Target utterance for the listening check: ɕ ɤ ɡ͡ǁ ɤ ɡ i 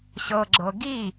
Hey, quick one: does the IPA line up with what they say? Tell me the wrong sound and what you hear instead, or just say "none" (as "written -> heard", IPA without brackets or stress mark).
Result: none